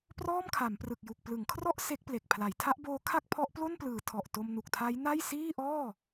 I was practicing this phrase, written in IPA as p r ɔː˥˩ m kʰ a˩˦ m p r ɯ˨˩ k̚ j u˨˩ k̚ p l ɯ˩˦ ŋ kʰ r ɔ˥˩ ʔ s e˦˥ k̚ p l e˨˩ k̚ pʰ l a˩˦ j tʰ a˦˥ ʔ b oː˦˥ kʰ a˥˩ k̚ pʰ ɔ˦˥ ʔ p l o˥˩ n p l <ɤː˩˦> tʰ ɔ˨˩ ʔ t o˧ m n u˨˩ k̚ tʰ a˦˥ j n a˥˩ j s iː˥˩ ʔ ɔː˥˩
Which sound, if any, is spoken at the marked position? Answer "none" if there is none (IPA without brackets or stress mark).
ɯː˩˦